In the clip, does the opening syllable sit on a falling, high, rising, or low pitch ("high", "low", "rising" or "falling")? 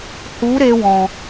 rising